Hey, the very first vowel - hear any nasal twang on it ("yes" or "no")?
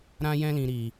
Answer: yes